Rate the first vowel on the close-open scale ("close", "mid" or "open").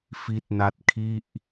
close